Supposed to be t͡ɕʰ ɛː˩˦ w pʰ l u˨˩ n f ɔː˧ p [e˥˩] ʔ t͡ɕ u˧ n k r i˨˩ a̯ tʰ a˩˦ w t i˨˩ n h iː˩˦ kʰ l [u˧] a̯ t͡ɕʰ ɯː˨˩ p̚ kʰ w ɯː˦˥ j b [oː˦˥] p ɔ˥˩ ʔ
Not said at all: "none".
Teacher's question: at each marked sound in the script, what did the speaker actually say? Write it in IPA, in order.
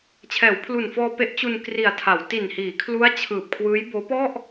e˦˥, u˦˥, oː˦˥

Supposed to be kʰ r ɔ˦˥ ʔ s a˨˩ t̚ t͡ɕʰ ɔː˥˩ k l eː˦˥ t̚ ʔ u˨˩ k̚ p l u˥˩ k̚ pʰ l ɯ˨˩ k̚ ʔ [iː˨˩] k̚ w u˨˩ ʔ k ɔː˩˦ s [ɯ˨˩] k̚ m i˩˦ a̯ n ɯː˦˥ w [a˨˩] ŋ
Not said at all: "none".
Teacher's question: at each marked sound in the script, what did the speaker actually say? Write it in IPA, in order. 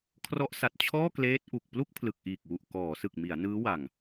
iː˨˩, ɯ˨˩, a˨˩

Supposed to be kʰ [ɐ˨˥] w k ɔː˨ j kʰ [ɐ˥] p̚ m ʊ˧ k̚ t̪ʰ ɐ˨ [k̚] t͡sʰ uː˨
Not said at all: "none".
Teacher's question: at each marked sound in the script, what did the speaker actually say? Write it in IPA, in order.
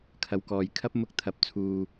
ɐ˨˥, ɐ˥, p̚

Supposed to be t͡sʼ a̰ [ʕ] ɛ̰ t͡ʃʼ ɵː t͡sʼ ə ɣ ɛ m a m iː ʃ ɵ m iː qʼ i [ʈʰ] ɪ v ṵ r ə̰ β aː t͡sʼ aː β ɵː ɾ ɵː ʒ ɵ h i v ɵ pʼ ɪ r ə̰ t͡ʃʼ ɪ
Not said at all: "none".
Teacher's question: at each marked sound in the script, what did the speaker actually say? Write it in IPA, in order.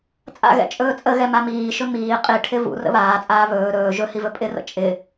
ɣ, ʈʰ

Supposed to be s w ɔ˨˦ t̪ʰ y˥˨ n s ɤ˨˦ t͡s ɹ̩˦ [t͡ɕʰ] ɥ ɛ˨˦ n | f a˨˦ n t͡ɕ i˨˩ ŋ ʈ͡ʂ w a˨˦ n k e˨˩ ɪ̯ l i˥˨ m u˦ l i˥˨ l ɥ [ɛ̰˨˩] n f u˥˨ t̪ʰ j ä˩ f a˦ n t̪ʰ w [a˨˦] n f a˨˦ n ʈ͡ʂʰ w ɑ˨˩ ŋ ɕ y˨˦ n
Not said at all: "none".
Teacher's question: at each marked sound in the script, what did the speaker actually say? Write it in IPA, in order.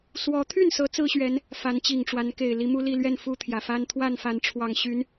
ɕ, ɛ˥˨, a˥˨

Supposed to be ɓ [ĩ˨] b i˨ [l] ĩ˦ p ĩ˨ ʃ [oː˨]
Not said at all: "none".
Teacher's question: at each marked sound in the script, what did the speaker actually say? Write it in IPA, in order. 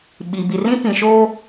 i˨, r, oː˦

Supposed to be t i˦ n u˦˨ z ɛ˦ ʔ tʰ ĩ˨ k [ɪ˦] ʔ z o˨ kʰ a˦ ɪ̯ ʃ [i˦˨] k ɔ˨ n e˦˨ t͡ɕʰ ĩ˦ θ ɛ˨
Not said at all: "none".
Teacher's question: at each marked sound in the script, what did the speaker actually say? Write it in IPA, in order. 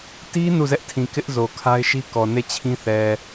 ɪ˦, i˦

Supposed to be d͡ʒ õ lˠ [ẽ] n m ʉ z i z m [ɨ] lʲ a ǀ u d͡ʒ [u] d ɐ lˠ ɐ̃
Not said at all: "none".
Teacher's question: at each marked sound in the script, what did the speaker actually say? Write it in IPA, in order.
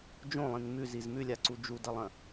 ĩ, ʉ, u

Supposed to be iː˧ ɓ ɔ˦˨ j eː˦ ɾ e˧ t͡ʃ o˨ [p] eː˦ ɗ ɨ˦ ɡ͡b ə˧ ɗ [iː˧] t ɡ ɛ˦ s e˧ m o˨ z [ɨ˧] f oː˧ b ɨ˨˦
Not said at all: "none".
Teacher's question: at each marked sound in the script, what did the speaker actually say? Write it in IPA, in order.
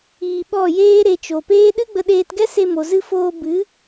p, eː˧, ɨ˧

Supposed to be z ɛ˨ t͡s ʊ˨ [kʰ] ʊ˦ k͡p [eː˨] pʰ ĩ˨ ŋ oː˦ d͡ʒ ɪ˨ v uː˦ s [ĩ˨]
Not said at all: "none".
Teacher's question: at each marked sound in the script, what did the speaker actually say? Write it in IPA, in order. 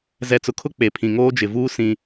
kʰ, e˨, ĩ˦

